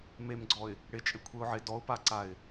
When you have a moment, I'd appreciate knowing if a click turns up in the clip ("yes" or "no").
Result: yes